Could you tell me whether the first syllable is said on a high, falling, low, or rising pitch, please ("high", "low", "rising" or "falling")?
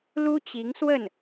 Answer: high